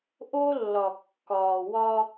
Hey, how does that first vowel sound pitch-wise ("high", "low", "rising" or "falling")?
high